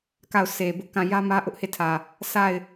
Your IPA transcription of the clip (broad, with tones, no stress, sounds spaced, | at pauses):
k a˦˨ ʊ̯ sʰ e˨ b ʊ˦ ʔ k ã˦˨ j ä˦ m ä˦ ʔ ʊ˦ ʔ h e˦˨ tʰ ä˨ | s a˦˨ ɪ̯